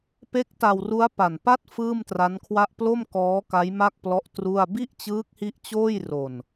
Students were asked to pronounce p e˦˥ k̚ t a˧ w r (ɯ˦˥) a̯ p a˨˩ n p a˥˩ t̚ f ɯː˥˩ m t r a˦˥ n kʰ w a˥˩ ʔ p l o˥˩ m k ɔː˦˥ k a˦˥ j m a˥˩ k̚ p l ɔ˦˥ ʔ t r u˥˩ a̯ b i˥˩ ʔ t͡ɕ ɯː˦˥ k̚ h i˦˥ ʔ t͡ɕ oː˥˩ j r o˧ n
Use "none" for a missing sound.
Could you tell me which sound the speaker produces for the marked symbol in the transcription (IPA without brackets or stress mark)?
u˦˥